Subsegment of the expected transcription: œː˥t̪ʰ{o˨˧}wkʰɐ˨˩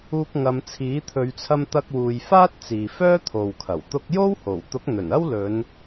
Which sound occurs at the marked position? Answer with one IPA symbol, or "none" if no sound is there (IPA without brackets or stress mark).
o˨